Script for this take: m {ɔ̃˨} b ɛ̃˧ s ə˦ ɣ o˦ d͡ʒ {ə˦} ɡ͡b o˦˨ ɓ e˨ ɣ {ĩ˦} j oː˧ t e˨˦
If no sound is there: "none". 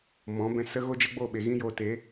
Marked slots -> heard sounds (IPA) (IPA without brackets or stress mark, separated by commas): ɔ̃˨˦, ə˦, ĩ˦